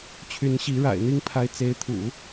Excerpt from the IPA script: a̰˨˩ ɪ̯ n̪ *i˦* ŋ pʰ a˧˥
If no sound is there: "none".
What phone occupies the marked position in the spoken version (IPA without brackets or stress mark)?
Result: i˥